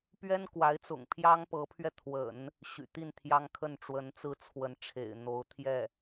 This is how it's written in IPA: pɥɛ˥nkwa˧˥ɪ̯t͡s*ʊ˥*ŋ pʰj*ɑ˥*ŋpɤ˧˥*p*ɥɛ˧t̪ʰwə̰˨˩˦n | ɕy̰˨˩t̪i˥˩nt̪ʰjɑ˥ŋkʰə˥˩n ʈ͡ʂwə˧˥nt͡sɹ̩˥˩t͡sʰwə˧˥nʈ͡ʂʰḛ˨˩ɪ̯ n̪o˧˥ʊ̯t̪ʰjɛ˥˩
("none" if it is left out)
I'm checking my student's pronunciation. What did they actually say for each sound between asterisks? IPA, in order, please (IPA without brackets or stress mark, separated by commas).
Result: ʊ̰˨˩, ɑ˥, pʰ